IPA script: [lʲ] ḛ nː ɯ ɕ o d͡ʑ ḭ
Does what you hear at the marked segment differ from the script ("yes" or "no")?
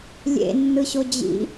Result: no